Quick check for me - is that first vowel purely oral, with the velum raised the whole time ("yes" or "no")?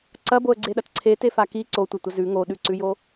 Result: yes